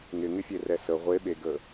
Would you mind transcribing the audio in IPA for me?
ŋɪŋɪfʲerɛ sə ʁʷeɓeɡə

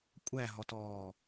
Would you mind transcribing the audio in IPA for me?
kʷʼæɦɔtɔː

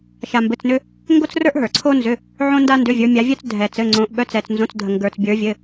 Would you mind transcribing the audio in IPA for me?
ʃa˧mbɘ˧˥˧t͡snʏ˥ | ŋɡo˥t͡srə˞˥ʔ ɦə˞˨˩˦ǀʰo˥nzʏ˧˥˧ | ʕõ˥nda˥ ndʏ˧˥˧vʲə˞˧˥mʲa˧˥vʲœ˥t͡s dʱɛ˧t͡sɘ˧˥˧ŋ͡ǀõ˧˥ʔ ɓœ˧˥˧t͡sɛ˧t͡snzõ˧˥˧t͡sdʱə˧ ŋɡə˞˧t͡sbʲə˞˧˥vʲɘ˧˥˧

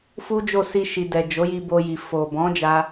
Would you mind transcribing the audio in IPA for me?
fu˦d͡ʒo˦˨ si˧ʃi˨dɛ˨ d͡ʒo˨˦ji˧bo˧ji˨ fo˨bɔ̃˨˦d͡ʒa˧

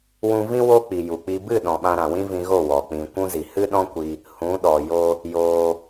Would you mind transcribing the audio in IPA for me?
wũ˧vĩ˦ wo˦k͡pi˨ju˨k͡pi˧ bɨ˦˨ ɗɔ̃˨ɓã˧ ɾã˨wĩ˦vĩ˧ɣo˦˨ wɔ˨ k͡pĩ˨ kʷũ˧zi˨ hɨ˦ɗɔ̃˦kʷi˧ | hũ˨˦ ɗɔ˨ jo˦ | joː˧

